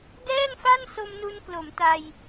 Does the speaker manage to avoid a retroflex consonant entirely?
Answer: yes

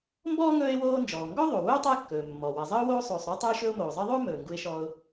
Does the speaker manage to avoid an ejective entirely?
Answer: yes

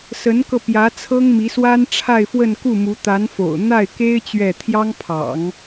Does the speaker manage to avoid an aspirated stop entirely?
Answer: no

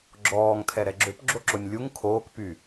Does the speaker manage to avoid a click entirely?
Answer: no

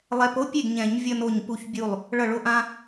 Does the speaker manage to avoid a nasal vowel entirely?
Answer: no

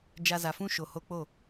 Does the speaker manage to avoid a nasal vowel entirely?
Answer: no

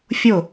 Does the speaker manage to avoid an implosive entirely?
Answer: yes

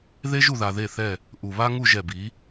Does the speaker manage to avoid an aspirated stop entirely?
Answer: yes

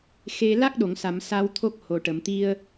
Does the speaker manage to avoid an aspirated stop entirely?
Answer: no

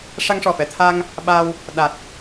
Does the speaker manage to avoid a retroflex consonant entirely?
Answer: no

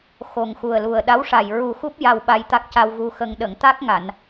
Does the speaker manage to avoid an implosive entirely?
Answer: no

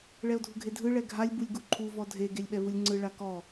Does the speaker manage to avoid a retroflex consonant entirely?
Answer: no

